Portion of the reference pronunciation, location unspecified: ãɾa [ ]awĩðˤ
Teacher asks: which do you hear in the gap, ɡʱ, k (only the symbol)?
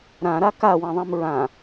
k